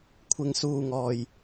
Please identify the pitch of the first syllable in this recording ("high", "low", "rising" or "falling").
high